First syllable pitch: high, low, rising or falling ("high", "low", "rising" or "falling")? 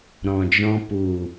low